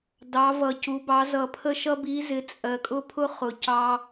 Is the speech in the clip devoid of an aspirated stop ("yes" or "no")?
no